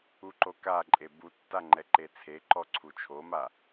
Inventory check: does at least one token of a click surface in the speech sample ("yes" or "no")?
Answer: yes